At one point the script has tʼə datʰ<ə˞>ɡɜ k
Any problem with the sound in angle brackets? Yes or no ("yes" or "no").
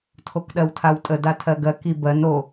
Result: yes